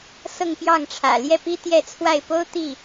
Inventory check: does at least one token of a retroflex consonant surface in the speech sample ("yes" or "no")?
yes